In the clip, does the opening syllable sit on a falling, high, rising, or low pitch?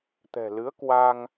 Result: low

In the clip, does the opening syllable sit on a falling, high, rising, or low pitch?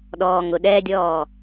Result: low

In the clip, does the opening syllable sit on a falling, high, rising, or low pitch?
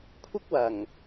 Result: high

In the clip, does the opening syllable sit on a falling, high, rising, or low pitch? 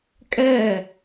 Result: falling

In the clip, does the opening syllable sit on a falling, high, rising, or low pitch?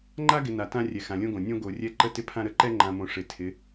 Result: high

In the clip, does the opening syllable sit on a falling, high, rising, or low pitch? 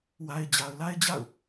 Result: low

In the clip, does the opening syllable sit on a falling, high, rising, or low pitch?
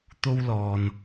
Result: high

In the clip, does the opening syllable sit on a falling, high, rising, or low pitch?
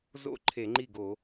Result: falling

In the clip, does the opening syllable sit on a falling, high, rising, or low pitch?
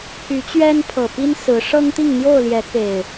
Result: rising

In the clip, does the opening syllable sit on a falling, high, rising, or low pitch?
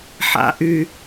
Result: rising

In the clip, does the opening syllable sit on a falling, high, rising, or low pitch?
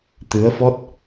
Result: rising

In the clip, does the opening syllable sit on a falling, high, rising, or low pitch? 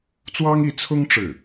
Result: high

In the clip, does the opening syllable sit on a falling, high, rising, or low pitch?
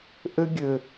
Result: high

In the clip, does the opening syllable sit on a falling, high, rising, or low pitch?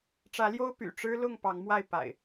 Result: rising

